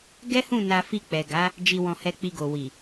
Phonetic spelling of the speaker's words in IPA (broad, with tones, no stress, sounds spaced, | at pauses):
ɡ ɛ˦ h ũ˦˨ n a˧ f i˧ k͡p ɛ˨ ɡ a˨˦ | d͡ʒ i˨ w ɔ̃˨ h ɛ˧ k͡p i˧ ɡ o˨ w i˨